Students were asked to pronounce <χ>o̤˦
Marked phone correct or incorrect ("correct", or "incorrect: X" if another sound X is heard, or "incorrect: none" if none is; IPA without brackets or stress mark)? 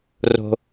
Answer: incorrect: r